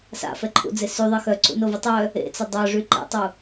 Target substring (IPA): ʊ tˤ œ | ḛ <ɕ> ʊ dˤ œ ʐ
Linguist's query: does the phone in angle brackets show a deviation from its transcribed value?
yes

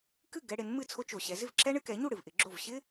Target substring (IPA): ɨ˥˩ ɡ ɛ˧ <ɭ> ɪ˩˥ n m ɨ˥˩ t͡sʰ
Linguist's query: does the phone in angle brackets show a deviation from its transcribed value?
yes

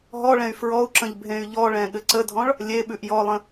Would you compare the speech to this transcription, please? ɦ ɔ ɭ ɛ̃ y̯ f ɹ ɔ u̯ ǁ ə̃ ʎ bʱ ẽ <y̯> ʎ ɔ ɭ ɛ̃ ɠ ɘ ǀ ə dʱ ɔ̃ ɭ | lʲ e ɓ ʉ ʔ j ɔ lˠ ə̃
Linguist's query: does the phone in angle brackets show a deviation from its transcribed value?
no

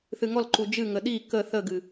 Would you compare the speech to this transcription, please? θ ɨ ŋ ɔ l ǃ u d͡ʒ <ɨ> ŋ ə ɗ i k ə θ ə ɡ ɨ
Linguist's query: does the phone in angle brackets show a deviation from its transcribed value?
no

